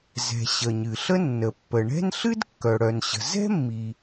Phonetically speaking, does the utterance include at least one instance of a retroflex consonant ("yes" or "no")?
yes